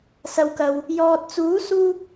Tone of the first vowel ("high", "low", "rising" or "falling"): low